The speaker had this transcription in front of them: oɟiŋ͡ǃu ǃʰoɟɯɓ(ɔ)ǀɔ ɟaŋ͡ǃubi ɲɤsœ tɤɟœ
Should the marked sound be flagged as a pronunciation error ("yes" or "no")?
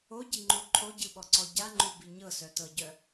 no